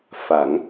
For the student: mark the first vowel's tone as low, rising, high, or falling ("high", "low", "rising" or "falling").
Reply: rising